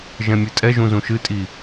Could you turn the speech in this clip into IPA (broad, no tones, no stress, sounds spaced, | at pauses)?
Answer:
ʒ ɛ̃ mʲ ɨ tʼ ɛ ʒ ũ z ũ ʃ ɨ tʼ i